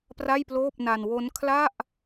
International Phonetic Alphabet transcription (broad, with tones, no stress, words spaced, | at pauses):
pra˥˩jploː˥˩p̚na˧n wo˦˥n kʰla˥˩ʔ